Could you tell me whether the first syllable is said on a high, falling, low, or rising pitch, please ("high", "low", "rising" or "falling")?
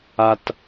low